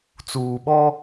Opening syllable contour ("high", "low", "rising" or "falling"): low